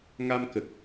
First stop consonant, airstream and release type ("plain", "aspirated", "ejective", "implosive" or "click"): plain